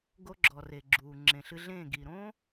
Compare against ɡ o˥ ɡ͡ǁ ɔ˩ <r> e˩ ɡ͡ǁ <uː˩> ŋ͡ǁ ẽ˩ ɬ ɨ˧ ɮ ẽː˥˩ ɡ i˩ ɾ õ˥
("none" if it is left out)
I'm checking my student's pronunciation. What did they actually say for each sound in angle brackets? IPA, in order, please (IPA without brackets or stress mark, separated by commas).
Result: r, uː˩